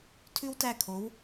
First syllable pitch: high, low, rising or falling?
high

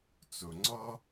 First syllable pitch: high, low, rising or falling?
low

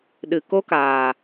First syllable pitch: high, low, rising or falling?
low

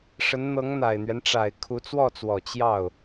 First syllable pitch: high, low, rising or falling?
rising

